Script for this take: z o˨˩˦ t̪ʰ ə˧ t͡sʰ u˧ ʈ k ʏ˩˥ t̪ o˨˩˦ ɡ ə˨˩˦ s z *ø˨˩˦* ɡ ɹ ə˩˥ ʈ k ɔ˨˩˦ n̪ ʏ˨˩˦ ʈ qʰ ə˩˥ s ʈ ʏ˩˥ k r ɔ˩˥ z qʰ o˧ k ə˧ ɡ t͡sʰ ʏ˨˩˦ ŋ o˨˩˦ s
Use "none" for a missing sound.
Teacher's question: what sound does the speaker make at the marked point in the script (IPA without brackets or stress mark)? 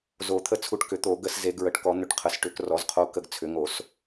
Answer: e˨˩˦